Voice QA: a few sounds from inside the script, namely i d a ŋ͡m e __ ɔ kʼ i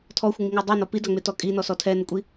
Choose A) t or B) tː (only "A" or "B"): A